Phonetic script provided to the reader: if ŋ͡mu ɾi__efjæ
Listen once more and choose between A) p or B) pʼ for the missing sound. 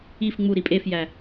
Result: B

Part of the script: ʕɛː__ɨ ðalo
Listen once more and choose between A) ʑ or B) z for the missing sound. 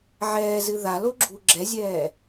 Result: B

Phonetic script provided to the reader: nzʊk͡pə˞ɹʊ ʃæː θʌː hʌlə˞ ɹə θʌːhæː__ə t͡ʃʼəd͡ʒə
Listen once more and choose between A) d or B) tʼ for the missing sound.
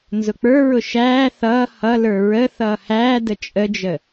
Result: A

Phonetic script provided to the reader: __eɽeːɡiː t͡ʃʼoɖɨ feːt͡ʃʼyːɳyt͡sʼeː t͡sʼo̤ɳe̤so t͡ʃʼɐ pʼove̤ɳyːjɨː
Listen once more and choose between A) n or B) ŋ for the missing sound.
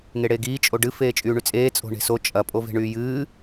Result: B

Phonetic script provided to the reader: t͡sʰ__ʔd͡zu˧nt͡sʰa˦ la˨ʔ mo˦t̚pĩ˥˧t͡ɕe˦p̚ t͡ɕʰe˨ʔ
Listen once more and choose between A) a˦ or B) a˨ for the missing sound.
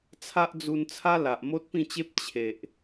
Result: A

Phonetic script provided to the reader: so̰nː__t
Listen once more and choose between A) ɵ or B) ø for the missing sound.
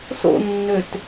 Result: B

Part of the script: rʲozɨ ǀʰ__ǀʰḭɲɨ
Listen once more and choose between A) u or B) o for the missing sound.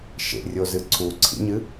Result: A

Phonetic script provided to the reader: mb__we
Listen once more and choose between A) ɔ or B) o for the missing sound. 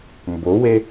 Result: B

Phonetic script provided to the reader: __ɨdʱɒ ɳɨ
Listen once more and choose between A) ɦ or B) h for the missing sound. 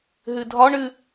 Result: A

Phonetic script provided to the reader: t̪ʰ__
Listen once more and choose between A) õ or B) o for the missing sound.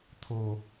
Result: B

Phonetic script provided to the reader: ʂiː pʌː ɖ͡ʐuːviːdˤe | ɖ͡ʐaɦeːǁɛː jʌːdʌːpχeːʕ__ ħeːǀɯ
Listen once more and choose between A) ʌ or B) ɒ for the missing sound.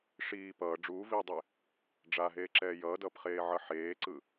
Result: A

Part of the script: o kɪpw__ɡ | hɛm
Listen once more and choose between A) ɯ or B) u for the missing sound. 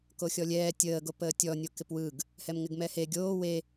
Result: A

